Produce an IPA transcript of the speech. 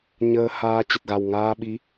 ɲ əː˧ h aː˧ t͡ɕ ə˨˩ t̚ ɣ a˨˩ w ŋ aː˧ ɓ i˨˦

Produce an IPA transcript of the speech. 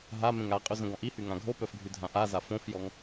ɦ a m ẽ ŋ a qʼ y z ə̃ ɡ ɔ̃ ʔ i h y ŋ ã ɡʱ o p œ f ɡʱ y dʱ ã ʔ a z a f õ f j ɔ ŋ

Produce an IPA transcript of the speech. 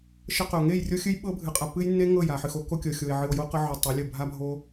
ʃ ə˦ q ɵ˨ o̯ ŋ e˦˨ j rʲ o˦ xʲ ɨ˦ j ɓ ɤ˦ bʱ ɨ˨ qʼ a˨ pː ɨ˦ j nː e˦ ŋ ɤ˦˨ j a˨ ħ ɨ˨ x o˦ k o˦ kʲ ɤ˨ xʲ o˨ e̯ ʕ ɨ˨ o̯ j o˦ q ə˦ ʕ ɵ˨ tˤ ɵ˨˦ lʲ ə˦˨ bʱ a˦ bʱ o˦

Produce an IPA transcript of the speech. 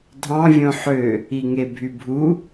dʱ ɑ̃ vʲ õ ħ ø | i ŋ e bʱ y bʱ u

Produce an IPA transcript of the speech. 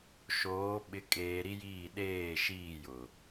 ʃ oː˨˦ ɓ ɪ˨˦ kʼ eː˨ ɾ i˦ j iː˦˨ ɗ eː˦˨ ʃ iː˦˨ j ʊ˨

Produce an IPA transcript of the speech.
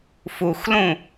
f u x l ũ

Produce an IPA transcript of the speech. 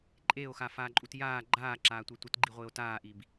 ǃʼ eː o̯ x a f aː ǃʼ u t j aː ɡ͡ǃ aː ǁ aː tʷ e tʷ ɪ t ɡ͡ǃ i ʁʷ ɪː o̯ t aː ʔ i b

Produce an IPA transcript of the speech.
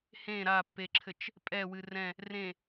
h ẽ ɾ a pː e ǁʰ ɘ t͡ʃ | pʼ ɛ w ɨ r ɛ̃ | r ẽ

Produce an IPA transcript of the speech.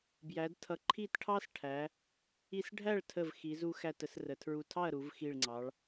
b j æ˩˧ d tʰ ʌ˩˧ ǃʰ i˧˩ t ʈʰ ɑ˧ s ʈʰ æ˩˧ | i˧ s ɖʱ æ˥˨ ɭ tʰ ə˧˩ v x i˩˧ z u˧ x æ˧˩ t ə˧˩ s r ə˩˧ tʰ ɹ u˧˩ tʰ ɑ˥˨ ɐ̯ ɾ u˩˧ v x i˧˩ ɭ ŋ͡ǀ ɑ˩˧ ɭ

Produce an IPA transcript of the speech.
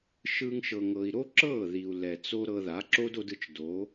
ʃ ɯ˦ ŋ ʃ ɤ˧ ŋ ɤ˧ i̯ ɾ o˦ ǁ ɤ˦˨ ð i˨ u̯ l ɛ˨ t͡s o˦ ɾ ɤ˧ ð a˨˦ ǁ o˦ d o˧ d ɯ˧ t͡ʃ d o˨˦

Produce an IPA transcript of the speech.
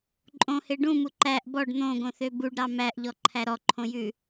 ǃʼ õ h e ɖ ũ m u ǃ æ ʔ b ɔ ɖ n̪ õ ɡ õ θ ø b u ɖ ɾ ɑ m æ ʔ ʎ ɔ ǃʰ æ ɾ ɔ ǃʰ õ j ʉ

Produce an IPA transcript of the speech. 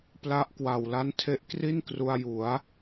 p l a˦˥ ʔ k w a˨˩ w l a˦˥ n tʰ e˦˥ ʔ k r i˥˩ n k r u˧ a̯ j u˩˦ a̯

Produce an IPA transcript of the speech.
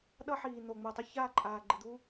ɗ ʌ˦ ħ iː˨ n̪ o˨ ŋ͡m u˨ tˤ ʊ˦ ç aː˦˨ ǃʼ aː˨ ɡ͡ǃ ɨ˨ d̪ u˦

